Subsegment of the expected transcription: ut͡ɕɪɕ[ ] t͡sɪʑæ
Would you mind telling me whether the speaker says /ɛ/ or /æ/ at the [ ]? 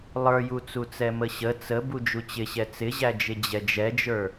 ɛ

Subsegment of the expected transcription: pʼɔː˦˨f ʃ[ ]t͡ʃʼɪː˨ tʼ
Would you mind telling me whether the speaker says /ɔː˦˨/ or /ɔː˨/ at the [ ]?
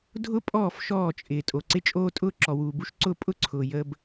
ɔː˦˨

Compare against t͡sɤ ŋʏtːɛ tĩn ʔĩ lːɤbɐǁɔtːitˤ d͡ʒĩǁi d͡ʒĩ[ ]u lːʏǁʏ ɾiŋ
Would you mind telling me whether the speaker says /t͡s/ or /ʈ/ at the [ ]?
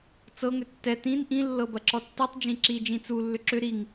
t͡s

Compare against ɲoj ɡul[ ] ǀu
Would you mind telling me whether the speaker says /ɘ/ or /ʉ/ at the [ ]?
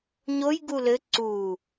ɘ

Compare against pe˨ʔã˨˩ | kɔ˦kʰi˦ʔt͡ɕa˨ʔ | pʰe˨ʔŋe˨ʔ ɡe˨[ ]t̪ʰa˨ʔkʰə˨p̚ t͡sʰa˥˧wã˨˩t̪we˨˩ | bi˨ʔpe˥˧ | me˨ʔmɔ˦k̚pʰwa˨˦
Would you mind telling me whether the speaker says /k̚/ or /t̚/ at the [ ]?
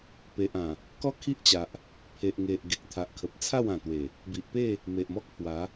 k̚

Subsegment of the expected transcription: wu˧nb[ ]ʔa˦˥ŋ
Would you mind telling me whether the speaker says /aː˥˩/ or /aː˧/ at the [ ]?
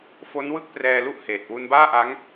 aː˥˩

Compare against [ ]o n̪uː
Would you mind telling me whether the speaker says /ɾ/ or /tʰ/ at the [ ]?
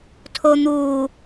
tʰ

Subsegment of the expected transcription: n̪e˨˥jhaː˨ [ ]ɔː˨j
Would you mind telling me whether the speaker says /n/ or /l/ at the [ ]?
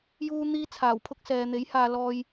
l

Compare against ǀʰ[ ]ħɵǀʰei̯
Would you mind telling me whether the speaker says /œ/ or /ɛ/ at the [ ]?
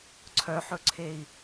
œ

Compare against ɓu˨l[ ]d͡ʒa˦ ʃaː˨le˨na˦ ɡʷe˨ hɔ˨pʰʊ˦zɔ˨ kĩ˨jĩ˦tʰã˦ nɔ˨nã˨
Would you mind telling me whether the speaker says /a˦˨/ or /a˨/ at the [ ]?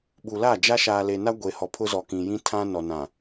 a˦˨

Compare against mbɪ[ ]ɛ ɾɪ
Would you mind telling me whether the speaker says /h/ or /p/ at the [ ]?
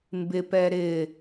p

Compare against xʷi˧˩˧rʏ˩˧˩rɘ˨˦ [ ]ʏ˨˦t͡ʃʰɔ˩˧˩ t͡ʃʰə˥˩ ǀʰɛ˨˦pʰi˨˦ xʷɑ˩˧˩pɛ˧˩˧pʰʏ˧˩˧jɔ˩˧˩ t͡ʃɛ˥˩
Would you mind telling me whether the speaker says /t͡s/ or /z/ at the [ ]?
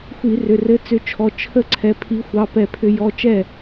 t͡s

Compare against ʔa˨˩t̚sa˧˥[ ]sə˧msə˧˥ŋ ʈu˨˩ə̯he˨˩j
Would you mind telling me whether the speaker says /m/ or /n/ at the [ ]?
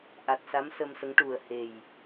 m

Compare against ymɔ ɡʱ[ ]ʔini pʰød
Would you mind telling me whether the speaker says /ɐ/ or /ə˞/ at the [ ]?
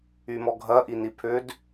ɐ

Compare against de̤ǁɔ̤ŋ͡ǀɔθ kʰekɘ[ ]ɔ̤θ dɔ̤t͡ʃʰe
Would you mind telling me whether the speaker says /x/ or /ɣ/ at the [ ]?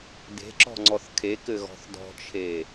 ɣ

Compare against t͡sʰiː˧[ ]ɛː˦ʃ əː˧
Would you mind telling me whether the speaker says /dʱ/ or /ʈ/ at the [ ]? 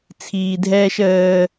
dʱ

